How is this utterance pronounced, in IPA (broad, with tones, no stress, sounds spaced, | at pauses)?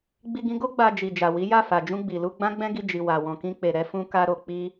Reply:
ɡ͡b i˧ ɡ ĩ˧ ɡ o˦ ɡ͡b a˧ d͡ʒ i˨ d͡ʒ a˨ w i˨˦ j a˦˨ f a˨ d͡ʒ ũ˧ ɡ͡b i˨ l u˧ ɡ͡b ã˦ ɡ͡b ɛ̃˦ ɡ i˧ d͡ʒ i˨ w a˨ w ɔ̃˨ k ĩ˧ k͡p e˨ ɾ ɛ˧ f ũ˦ k a˦ ɾ o˧ k͡p i˦